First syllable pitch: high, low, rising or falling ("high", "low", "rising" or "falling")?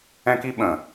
high